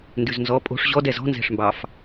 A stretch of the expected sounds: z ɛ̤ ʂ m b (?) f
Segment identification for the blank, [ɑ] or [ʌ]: ɑ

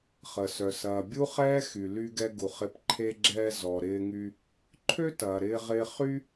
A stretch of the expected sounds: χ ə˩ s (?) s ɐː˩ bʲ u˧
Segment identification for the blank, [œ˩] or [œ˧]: œ˩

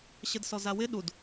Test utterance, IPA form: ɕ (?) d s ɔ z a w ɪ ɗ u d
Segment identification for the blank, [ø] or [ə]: ə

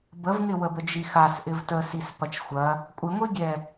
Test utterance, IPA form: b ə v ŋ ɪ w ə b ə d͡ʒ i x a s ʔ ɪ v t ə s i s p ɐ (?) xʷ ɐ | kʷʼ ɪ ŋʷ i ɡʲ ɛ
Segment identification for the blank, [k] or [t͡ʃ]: t͡ʃ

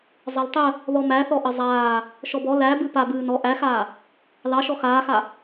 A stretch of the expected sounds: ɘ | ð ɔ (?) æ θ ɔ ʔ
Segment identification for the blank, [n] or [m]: m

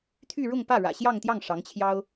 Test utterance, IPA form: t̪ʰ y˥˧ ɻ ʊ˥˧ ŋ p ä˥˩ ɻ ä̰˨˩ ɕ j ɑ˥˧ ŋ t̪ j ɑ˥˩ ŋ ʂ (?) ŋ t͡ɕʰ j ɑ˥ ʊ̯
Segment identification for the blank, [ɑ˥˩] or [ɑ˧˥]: ɑ˧˥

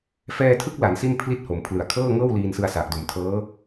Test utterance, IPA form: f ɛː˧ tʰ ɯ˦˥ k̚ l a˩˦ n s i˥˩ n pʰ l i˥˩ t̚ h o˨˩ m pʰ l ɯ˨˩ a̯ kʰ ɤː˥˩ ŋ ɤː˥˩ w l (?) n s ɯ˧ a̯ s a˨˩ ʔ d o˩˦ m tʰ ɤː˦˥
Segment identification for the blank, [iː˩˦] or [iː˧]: iː˧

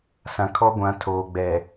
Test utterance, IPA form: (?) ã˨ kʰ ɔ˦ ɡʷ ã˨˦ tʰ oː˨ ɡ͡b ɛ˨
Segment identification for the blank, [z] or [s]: s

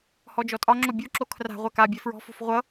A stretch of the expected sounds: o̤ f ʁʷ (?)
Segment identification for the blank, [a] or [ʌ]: ʌ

